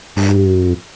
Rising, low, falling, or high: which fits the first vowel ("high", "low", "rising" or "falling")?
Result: low